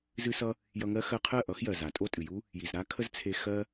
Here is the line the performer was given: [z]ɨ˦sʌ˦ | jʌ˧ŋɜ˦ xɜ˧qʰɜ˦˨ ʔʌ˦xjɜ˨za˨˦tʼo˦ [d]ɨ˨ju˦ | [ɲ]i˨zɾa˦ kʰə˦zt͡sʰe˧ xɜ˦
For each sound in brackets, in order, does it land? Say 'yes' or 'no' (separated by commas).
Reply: yes, no, no